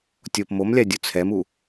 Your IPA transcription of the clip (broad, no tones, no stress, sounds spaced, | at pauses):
tʲ o p m o m lʲ a dʲ u t͡sʰ ɛ m u